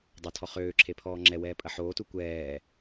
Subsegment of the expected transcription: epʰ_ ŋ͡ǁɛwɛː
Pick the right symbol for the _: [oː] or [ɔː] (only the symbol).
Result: ɔː